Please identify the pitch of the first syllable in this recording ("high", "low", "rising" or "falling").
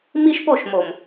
high